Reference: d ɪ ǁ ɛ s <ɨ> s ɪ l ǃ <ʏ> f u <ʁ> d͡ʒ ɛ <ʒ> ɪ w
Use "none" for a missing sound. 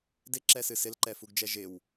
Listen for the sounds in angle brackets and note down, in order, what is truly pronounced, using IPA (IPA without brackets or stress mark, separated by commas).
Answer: ɨ, ɛ, ɡ, ʒ